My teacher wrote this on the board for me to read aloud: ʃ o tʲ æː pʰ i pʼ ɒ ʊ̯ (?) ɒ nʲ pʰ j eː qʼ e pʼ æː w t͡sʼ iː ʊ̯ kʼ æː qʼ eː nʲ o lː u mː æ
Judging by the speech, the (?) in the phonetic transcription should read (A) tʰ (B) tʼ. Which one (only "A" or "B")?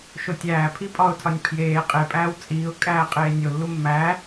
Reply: A